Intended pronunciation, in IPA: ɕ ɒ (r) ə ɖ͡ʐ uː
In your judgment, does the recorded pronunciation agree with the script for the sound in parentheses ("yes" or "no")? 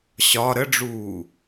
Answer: no